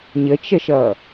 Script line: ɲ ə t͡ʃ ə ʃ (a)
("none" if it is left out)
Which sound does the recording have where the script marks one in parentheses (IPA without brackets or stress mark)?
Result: ʌ